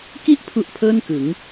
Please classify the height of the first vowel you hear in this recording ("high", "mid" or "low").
high